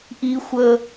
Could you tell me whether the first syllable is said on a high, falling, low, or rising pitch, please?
high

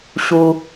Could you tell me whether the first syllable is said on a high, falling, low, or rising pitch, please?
high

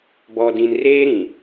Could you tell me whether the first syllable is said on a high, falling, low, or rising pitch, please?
low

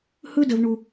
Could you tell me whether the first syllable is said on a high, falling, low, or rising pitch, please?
high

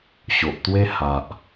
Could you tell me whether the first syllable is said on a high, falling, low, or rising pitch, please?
low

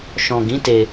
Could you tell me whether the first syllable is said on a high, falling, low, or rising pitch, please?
low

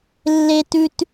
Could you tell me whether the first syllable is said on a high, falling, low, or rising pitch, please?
high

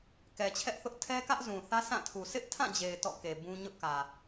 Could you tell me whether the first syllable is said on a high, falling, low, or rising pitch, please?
low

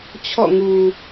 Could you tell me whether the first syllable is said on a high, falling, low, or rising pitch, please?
falling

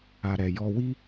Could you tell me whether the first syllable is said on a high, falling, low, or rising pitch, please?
low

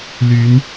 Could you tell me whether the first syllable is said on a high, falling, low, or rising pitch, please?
rising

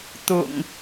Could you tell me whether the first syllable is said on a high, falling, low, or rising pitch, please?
low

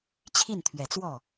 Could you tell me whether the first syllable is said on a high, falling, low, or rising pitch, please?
falling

